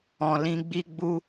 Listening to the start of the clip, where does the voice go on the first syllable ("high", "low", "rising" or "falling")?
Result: low